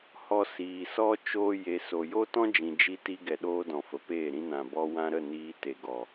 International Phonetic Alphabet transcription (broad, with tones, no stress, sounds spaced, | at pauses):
h ɔ˧ s iː˨ s ɔ˦ t͡ʃ oː˦ j e˧ s o˨ j o˦ t ɔ̃˦ d͡ʒ ĩ˨ d͡ʒ i˧ t i˧ ɡ ɛ˨ ɗ oː˧ d ɔ̃˨ f ə˨ p eː˦˨ ɾ ĩ˧ n ã˨ b ɔ˧ w ã˧ ɾ ə˦˨ n iː˧ t e˨ ɡ ɔ˨